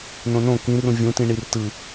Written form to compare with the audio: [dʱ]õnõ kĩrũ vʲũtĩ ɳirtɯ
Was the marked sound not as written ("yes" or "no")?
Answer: yes